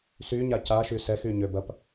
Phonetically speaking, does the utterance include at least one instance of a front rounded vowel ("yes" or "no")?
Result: yes